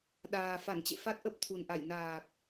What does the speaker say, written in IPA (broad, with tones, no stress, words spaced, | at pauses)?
ɗaː˨˩ fa˧˩nt͡ɕḛ˧˨ fa˦˥t̚ʔə˦˥p̚t̪ʰu˨˩nʔa˧˩j naː˨˩k̚